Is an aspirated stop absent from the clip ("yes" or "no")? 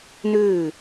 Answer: yes